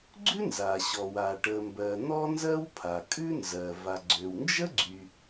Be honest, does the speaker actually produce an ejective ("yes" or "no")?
yes